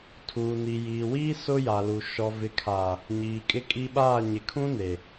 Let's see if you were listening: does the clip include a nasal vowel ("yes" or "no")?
yes